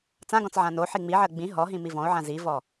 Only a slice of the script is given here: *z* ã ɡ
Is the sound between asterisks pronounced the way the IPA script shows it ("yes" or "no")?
no